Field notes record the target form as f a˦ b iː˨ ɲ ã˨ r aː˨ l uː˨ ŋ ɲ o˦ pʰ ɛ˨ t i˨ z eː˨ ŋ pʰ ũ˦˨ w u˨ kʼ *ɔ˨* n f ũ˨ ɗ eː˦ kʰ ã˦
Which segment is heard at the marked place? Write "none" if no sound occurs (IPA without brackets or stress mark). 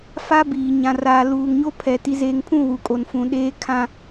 o˨